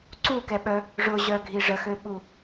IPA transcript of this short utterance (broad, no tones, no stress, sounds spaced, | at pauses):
ǀ u k ɛ ɓ œ | ʐ ʊ ʑ œ ɡʱ i ʐ ə x ø ɓ u